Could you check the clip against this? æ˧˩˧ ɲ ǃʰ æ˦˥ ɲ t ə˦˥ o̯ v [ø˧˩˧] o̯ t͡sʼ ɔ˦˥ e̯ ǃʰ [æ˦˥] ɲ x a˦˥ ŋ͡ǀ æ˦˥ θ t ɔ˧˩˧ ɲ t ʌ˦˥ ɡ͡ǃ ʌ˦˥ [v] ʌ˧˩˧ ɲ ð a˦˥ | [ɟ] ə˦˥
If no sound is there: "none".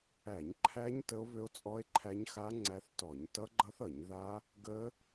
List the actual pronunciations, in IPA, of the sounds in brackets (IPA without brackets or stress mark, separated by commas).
ø˦˥, æ˦˥, θ, ɡ